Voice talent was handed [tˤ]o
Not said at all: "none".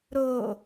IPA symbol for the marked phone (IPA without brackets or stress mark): ɾ